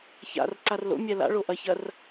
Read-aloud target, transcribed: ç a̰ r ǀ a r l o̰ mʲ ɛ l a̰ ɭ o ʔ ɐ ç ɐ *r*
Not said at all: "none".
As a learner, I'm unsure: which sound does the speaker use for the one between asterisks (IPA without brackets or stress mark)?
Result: r